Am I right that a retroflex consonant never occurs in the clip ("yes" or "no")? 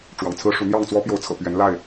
no